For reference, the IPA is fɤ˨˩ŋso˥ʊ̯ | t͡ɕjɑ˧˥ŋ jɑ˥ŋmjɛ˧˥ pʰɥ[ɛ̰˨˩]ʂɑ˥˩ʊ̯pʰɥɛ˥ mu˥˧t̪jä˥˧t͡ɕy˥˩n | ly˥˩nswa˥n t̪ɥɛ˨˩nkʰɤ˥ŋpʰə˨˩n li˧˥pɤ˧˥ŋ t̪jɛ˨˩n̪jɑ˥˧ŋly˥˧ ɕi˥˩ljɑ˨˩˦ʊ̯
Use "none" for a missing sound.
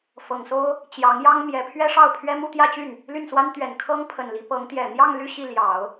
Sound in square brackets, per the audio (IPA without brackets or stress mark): ɛ˥